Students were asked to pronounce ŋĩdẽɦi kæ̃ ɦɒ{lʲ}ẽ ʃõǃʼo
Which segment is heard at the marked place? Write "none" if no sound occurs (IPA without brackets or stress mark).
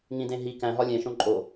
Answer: lʲ